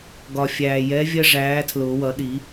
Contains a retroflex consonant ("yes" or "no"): yes